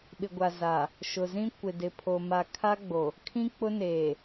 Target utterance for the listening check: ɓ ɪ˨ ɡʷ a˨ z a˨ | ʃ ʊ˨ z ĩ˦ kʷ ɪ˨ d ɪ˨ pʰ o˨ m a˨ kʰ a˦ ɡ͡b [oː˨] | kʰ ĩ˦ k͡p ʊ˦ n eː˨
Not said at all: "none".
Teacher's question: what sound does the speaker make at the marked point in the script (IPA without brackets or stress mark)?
o˨